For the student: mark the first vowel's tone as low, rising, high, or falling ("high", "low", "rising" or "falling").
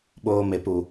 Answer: high